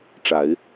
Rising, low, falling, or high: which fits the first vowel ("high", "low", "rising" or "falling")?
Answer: low